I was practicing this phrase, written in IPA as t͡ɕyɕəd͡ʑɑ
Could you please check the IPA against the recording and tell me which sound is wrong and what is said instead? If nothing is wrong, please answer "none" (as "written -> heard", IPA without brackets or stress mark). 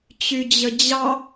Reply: ɕ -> d͡ʑ